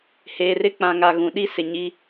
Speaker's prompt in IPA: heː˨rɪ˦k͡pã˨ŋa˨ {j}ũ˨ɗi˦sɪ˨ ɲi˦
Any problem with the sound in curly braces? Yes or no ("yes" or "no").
yes